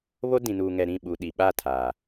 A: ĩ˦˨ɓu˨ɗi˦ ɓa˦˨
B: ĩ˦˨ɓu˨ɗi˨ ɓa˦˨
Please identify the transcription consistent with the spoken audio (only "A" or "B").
B